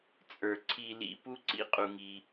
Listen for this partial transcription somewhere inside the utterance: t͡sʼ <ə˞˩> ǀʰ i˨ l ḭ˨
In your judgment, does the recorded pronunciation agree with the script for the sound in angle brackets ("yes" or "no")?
yes